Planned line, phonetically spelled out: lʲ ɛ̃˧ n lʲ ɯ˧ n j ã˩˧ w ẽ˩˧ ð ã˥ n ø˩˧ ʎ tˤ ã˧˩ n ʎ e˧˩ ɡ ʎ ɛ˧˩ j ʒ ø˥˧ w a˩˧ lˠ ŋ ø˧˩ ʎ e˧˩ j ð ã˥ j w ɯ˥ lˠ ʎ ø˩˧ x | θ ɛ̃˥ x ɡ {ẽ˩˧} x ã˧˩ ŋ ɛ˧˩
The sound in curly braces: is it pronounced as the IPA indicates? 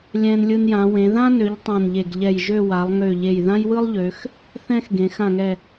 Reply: yes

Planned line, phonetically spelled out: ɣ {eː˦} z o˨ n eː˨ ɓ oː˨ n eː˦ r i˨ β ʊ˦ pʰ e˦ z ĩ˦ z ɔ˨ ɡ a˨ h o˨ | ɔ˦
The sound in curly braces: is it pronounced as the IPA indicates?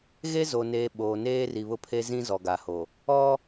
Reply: no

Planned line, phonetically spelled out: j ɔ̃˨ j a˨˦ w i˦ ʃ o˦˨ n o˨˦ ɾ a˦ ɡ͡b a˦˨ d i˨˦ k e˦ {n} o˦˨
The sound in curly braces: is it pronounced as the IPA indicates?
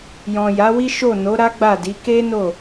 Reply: yes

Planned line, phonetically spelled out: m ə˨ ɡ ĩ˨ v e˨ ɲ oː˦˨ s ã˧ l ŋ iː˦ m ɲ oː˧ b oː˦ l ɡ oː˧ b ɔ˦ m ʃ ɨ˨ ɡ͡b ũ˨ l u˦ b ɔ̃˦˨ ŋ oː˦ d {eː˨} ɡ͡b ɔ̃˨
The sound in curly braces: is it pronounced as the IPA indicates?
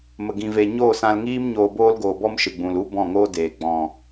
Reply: yes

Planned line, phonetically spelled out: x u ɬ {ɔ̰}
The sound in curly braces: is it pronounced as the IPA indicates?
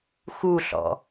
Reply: yes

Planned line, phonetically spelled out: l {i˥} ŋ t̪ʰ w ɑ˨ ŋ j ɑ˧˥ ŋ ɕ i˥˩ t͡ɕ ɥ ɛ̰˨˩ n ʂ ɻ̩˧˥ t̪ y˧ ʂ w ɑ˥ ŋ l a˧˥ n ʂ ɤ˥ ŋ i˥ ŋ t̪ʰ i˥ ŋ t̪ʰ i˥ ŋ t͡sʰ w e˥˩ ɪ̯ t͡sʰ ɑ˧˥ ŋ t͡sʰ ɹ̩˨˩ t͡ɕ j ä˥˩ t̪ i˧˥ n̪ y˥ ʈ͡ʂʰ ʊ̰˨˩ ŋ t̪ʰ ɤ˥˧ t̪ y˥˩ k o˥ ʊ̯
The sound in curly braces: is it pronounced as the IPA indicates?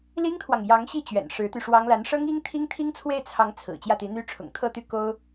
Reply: yes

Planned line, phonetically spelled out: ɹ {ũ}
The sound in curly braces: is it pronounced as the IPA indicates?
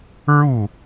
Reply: no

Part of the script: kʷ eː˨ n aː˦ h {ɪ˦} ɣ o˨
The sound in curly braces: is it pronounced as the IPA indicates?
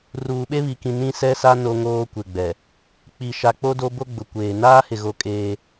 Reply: no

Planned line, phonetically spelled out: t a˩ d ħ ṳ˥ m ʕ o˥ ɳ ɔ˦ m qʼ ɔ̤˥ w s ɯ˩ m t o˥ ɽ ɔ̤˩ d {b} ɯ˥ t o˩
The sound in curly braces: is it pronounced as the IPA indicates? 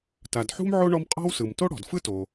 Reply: no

